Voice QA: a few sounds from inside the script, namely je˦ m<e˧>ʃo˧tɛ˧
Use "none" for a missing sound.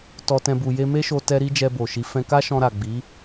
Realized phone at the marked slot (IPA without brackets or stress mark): e˦